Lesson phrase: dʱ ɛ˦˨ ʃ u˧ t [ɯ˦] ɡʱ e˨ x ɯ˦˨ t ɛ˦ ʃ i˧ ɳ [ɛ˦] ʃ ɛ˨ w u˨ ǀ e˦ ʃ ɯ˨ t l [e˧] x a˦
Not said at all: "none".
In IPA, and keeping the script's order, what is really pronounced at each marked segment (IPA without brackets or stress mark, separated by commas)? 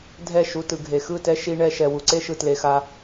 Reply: ɯ˨, ɛ˧, e˧